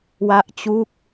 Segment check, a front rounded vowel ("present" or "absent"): absent